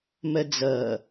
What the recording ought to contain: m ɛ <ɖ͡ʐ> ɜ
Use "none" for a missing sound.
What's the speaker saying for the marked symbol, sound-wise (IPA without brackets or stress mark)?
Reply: d͡z